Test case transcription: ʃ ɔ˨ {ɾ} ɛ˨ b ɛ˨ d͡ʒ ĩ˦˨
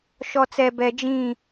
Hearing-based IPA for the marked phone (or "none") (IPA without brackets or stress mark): t͡s